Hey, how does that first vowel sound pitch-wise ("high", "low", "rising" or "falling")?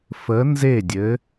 rising